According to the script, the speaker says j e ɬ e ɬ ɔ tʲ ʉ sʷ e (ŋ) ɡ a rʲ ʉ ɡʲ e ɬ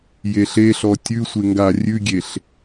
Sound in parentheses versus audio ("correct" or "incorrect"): correct